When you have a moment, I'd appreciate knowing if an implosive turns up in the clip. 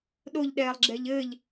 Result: yes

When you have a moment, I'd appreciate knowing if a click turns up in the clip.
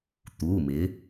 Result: no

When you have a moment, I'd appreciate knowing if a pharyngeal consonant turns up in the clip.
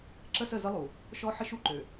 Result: yes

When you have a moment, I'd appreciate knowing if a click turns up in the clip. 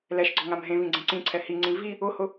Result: yes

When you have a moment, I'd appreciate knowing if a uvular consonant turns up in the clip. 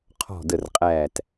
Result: yes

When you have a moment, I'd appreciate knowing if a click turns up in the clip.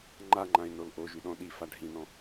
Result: yes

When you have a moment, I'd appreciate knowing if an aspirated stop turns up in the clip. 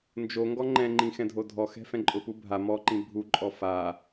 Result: no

